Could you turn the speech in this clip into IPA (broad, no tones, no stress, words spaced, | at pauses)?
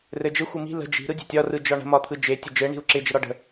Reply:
rɘd͡ʒɘ xʷɯmi̤ lə̤ d͡ʒi̤ ɾɯdʲe̤tʲɒ rɯd͡ʒɒɳə̤ mɒt̪ʰɯd͡ʒe tʲɘd͡ʒɘ ɳi̤u̯ǁɪ d͡ʒəɾɒɖə̤